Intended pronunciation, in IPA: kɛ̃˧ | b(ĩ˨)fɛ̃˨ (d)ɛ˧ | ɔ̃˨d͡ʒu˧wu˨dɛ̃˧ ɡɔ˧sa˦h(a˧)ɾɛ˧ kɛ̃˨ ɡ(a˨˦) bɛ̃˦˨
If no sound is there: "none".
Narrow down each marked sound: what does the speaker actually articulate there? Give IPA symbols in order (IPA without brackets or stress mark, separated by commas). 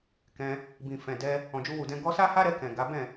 ĩ˨, d, a˦, a˨˦